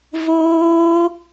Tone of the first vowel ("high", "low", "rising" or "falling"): high